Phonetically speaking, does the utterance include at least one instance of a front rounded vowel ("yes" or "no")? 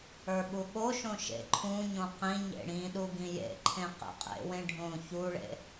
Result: no